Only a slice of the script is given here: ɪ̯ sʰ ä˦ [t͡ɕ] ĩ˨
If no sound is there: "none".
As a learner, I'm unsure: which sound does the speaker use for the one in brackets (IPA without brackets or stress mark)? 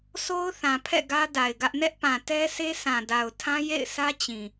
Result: t͡ɕ